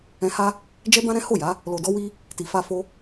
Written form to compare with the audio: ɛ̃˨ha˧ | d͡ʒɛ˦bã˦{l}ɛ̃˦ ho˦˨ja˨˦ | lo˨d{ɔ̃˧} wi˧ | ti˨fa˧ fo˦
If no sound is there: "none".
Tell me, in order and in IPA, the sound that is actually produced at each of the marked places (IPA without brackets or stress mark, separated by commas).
ɾ, ɔ˧